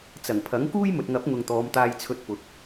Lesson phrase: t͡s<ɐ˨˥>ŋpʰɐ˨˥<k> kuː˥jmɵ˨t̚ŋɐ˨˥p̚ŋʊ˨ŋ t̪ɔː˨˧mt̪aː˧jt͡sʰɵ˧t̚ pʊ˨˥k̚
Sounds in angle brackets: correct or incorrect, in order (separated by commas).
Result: incorrect, incorrect